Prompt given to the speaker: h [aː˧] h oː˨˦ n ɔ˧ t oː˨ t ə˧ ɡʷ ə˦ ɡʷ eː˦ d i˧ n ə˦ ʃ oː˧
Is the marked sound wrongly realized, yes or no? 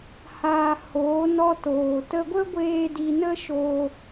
no